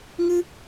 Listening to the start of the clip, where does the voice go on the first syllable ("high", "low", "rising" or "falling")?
high